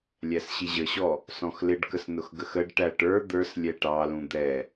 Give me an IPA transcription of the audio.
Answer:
lʲ æ s ɕ i ʑ ə ɕ ɔ | s ɔ̃ x l ɪ ɖ k ə s n ʊ x ɡ ə x ə ɖ ʈ æ ʈ ə˞ d̪ ə˞ s lʲ ɛ ʈ ɑ l ũ d̪ ɛ

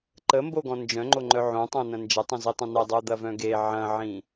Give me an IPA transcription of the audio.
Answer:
ǃ ə m b o ɡ ɔ̃ n d͡ʒ œ̃ ŋ͡ǃ o ŋ͡ǃ œ ʕ õ tˤ õ n ɐ̃ n d͡ʒ ə tˤ ə̃ z i tˤ ə̃ n ə dˤ o d̪ ɐ v œ̃ ɡ e ʕ ɐ̃ ʕ ĩ

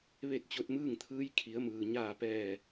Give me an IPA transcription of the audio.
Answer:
ʋ e˥˨ t̚ t͡ɕ o˧ t̚ m ɯː˥˨ ŋ t̪ʰ ɯː˧˥ j kʰ i˩˧ ə̯ m ɯː˩ ɲ aː˧˩ p ɛː˧˩

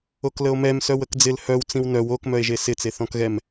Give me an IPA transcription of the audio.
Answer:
o k l ə o̯ m ɛ m s œ w ə k d͡z ɪ l h œ w t͡s ĩ w n œ w o k m œ e̯ ʒ e s ɪ t͡s e θ ɔ̃ k ɣ ɛ m

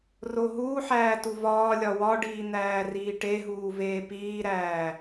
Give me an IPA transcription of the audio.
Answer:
r o ɦ uː ħ æː t u v ɒː lʲ ɒ w ɒ ɖ iː n̪ æː r iː ʈ e ɦ uː v eː p iː ɾ æː

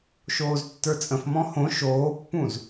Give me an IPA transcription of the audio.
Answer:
ʃ oː z tː ə˞ t͡sʼ ə̃ f m ɔ̃ h õ ʃ oː pː ũ z

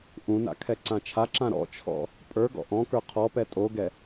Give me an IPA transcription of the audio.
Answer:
ʔ ũ n a̰ kʰ ɛ ǀ ã t͡ʃʰ a ǁ ã ɾ ɔ̰ t͡ʃʰ ɔ̰ | pʼ ə˞ ɡ ɔ̰ ʔ ɔ̃ k ə˞ qʰ ɔ p ɛ tʼ o ɡ ɛ

